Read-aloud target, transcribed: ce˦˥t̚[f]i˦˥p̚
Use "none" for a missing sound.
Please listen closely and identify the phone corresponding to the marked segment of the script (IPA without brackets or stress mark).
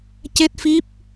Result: f